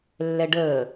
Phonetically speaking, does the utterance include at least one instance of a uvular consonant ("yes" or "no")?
no